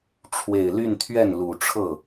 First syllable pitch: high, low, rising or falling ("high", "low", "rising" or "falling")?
low